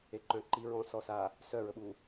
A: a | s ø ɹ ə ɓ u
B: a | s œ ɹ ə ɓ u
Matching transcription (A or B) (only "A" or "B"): B